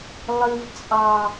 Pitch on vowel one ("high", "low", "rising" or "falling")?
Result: high